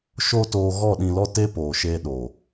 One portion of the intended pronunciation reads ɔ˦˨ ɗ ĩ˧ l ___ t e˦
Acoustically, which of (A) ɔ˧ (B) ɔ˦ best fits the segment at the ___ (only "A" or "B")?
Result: B